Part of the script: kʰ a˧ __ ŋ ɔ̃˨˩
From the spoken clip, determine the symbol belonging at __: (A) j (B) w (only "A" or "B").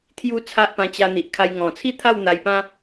A